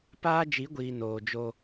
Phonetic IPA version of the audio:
paː˦d͡ʒi˨˦ɡʷiː˨ noː˨d͡ʒo˦

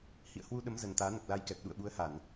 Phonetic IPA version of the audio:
hḭ˧˨ə̯hwu˧ɗə˨˦m zə˨˩nt̪aː˨˦nə˨˩p̚ la˧jkɛ˨˩p̚ ɗṵ˧˨ə̯ɓu˨˦ə̯ ha˧˩˨n

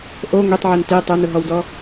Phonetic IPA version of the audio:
ʔo ŋʷitˤʕin ti tˤonʊɦɔwdɔ

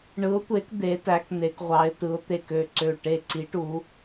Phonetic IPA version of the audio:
ɳɯ˨˦ʊ̯tʷe˨˦k d̪e˨˦tæ˨˦kn̪e˨˦k ʁʷɑ˨˦ɪ̯tɯ˨˦ʊ̯t̪e˧˩k ø˧˩ǀø˧˩ ʈe˧˩ǀi˨˦ʈu˨˦

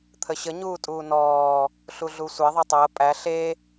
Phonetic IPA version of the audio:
t̪ʰəɕə ɲuːtʼuːnɔː | ɬuɮusʷe ðˤetˤəː pʼæ ɬe

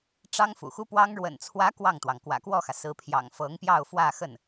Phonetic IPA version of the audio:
ʈ͡ʂɑ˥ŋfṵ˨˩xu˥pwɑ˥ŋ ɻwə̰˨˩nt͡sʰwä˧˥ kwɑ˥˩ŋt̪wɑ˩ŋ kwä̰˨˩kwɔ˥˩xä˩ sɹ̩˧˥pʰjɑ̰˨˩ŋfɤ˧˥ŋ pjɑ˥˧ʊ̯fwä˥˧ xə˥˩n

